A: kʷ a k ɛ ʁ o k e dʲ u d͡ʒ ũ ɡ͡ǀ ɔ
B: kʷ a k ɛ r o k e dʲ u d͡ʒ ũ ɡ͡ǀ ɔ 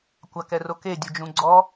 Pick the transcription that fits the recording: B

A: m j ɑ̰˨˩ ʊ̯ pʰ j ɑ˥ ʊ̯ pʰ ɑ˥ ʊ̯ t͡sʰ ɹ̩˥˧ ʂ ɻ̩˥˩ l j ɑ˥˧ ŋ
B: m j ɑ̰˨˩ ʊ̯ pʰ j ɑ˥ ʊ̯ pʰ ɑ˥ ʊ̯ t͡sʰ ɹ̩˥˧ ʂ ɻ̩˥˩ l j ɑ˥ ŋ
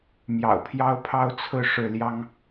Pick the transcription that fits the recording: B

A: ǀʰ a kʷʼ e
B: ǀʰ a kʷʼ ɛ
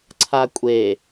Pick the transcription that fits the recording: A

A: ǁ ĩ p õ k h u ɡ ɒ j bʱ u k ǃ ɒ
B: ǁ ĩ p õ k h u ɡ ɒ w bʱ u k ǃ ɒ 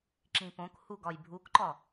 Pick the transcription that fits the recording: A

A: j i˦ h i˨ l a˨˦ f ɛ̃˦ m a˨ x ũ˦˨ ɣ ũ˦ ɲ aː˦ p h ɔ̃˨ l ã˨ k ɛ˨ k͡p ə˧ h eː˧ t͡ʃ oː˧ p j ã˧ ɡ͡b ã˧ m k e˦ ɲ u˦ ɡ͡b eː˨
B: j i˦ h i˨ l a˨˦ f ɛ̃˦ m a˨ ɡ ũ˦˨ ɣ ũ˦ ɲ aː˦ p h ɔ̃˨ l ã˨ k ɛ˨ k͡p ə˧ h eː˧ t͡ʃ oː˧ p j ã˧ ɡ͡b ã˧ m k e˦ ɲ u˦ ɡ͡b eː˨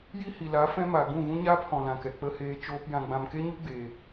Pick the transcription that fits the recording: B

